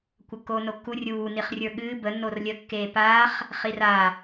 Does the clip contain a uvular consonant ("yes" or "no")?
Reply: yes